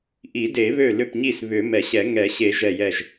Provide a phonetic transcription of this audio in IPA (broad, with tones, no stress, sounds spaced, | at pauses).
ʔ i˨˩˦ d e˨˩˦ β ø˧˩ l ʏ˧˩ p ɲ i˧˩ s β ʏ˨˩˦ m ɛ˨˩˦ ɕ ɛ˨˩˦ ŋ ɛ˨˩˦ ɕ e˨˩˦ ʒ ɛ˧˩ j ɛ˧˩ ʒ